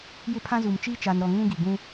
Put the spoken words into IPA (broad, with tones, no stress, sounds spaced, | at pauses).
j ɪ˦ pʰ ã˦ z u˨ m t͡ʃ iː˦ t͡ʃ a˨ n ɾ ɔ˨ ŋ ũ˦ ɡ i˨ ɡ ũ˦